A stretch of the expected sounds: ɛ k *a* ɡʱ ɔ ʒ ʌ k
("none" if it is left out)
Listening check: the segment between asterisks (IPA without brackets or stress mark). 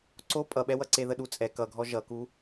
ʌ